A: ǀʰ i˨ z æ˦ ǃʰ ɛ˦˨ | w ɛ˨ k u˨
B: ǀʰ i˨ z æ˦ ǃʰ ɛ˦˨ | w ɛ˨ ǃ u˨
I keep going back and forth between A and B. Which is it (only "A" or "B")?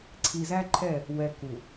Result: A